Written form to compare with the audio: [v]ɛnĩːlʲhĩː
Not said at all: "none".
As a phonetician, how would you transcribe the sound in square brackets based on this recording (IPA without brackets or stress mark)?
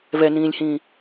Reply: v